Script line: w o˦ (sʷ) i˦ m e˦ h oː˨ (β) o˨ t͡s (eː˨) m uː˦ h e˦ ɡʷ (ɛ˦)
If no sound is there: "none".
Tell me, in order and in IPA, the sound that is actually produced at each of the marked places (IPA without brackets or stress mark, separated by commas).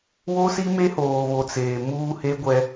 s, β, eː˨, ɛ˦